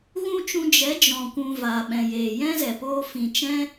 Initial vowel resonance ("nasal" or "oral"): nasal